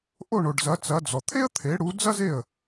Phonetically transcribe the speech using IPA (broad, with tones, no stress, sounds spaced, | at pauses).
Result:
ʔ o˥˩ ɳ o˩ ɖ z ɐ˩˥ t͡s ɐ˩˥ d͡z ɔ˩ t̪ʰ e˥ ə̯ t̪ʰ e˩˥ ɽ u˩˥ d͡z ɐ˥ z e˥˩ ə̯